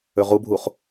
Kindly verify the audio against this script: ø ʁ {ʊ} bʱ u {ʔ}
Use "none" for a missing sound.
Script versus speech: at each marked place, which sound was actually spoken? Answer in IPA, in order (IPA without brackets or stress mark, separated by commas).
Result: u, χ